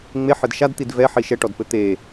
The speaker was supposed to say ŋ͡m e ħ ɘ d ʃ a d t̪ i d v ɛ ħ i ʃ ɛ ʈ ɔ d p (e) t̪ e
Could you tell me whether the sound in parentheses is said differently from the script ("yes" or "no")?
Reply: yes